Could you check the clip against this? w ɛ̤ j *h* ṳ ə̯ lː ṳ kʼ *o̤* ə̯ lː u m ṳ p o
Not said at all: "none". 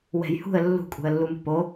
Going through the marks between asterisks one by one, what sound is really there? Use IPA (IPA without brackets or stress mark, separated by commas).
h, ṳ